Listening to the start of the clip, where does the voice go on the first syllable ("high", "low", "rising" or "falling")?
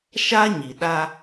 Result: high